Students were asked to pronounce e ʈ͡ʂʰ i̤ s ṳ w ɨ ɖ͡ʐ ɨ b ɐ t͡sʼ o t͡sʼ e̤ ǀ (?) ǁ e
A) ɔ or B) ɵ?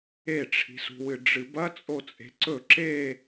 B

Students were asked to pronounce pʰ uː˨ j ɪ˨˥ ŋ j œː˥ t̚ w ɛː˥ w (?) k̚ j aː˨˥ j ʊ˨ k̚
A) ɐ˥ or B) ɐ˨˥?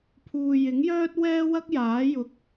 A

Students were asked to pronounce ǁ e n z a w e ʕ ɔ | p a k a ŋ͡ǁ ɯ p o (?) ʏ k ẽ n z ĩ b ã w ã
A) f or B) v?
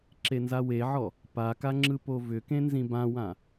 B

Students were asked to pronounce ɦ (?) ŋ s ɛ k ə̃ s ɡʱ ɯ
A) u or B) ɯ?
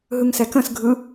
B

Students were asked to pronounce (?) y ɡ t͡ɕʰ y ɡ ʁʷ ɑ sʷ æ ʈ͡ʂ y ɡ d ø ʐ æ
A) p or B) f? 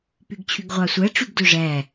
A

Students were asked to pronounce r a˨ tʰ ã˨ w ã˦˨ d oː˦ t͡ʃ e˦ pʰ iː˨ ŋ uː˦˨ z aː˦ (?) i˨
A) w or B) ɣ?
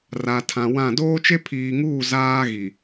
B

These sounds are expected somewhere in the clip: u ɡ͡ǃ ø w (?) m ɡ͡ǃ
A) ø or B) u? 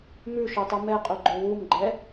B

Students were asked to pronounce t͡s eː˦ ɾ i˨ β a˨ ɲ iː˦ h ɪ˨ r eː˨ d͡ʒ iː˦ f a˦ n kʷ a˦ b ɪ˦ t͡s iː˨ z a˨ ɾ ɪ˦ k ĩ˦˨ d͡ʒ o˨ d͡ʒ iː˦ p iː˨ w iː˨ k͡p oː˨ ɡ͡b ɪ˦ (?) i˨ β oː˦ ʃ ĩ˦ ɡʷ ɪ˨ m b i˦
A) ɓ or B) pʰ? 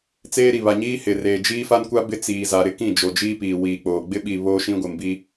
A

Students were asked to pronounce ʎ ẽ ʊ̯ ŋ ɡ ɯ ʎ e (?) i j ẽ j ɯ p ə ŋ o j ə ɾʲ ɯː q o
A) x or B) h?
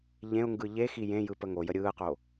A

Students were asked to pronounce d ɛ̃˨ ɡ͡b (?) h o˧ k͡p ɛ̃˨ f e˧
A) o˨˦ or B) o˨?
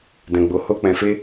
B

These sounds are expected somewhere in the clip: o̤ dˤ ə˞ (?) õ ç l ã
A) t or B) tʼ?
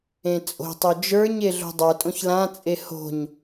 B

